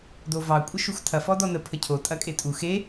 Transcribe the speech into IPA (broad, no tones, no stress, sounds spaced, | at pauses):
d o v ɑ kʷʼ ə ʃ u x tʰ ɐ f ɔ d ɔ n ə pʰ ə cʰ o tʼ ɐ kʼ e tʼ u x e